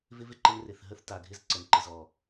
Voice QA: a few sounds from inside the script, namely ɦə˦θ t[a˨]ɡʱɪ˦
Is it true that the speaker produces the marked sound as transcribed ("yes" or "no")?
yes